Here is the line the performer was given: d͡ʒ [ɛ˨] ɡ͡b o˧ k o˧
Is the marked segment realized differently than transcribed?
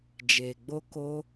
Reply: yes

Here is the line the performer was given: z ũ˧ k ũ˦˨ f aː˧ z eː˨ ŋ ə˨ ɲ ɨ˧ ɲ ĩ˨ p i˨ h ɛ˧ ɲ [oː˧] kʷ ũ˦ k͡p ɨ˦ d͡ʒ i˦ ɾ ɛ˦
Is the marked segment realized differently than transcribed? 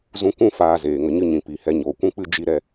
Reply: yes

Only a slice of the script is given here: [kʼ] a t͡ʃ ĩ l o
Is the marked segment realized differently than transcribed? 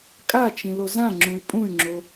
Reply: no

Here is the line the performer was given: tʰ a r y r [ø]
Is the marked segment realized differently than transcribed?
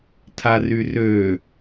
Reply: no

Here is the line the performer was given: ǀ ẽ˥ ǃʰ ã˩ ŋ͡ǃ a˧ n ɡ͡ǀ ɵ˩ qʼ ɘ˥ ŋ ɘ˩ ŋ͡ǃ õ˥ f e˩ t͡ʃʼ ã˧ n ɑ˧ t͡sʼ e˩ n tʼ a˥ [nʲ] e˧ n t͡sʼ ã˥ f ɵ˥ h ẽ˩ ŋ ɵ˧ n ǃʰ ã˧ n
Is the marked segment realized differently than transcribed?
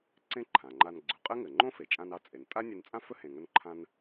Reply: no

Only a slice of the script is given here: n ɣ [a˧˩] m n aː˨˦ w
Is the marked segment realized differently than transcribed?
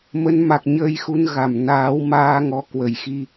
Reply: no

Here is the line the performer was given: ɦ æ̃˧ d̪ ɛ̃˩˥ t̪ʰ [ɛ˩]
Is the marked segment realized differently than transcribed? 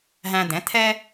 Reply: yes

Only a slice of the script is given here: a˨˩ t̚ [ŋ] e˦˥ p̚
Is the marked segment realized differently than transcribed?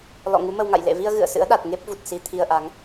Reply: no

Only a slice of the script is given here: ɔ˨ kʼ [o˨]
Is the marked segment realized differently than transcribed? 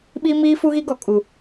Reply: yes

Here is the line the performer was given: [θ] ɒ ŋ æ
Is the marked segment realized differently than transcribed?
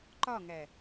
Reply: yes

